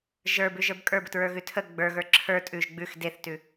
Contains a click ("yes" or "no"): yes